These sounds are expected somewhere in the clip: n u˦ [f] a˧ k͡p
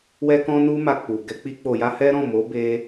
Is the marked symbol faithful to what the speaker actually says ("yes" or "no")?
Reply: no